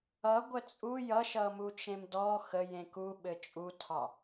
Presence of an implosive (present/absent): present